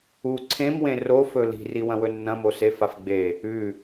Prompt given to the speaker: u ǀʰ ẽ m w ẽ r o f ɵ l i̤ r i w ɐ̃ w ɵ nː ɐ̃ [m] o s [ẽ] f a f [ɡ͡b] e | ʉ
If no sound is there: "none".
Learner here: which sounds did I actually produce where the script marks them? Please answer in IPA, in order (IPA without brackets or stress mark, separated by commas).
m, e, ɡ͡b